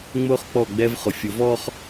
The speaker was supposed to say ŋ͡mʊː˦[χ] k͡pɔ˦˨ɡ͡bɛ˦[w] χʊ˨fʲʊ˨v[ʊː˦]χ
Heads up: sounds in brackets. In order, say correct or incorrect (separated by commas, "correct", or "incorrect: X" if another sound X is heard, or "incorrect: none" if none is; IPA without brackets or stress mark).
correct, incorrect: v, incorrect: ɔː˦